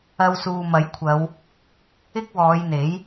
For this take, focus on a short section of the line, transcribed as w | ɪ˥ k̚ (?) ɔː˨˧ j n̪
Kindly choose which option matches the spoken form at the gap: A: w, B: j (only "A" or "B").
A